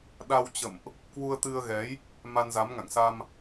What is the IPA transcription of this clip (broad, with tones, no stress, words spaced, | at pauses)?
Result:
ɗa˧wt͡ɕə̰˧˨mʔ | kwu˧ə̯t̪ɨ˧ə̯ɣɛ˨˦j | ma˧nza˨˦mŋa̰˧˨ŋsa˧m